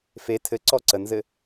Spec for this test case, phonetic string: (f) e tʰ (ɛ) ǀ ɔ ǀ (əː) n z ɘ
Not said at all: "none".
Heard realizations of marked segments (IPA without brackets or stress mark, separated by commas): f, ɘ, ə